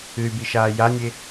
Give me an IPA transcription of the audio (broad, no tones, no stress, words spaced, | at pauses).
ɨy̯biʃaː janʲe